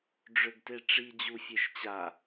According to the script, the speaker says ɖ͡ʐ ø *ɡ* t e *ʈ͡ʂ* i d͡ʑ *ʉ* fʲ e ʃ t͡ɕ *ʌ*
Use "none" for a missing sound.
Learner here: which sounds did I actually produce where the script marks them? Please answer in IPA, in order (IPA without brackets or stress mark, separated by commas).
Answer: ɡ, ʈ͡ʂ, u, a